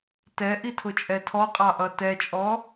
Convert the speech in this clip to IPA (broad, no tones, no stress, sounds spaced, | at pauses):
t ɛ ʔ i tʰ ʊ t͡ʃʼ ɛ tʰ ɔ qʼ ɑ ʔ ʌ t ɛ t͡ʃʼ ɔ